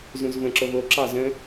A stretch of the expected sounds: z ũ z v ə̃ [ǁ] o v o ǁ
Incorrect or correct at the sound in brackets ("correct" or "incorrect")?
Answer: correct